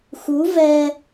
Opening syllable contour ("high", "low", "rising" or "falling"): rising